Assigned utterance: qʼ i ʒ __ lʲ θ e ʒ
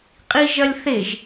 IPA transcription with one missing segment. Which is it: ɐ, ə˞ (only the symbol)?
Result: ɐ